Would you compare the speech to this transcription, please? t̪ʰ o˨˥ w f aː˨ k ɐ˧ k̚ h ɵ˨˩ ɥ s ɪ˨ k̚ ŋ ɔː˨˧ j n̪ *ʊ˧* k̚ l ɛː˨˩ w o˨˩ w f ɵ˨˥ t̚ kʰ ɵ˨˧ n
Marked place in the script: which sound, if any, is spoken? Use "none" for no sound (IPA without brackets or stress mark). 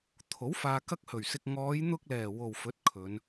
ʊ˧